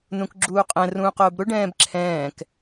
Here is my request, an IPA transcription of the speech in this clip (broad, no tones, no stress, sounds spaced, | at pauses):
n ũ k ɡ͡ǁ uː qʼ ɛ̃ r ũː q ʊː b ɾ ʊ ɖ ɛ̃ː b ǁʰ ɛ̃ː k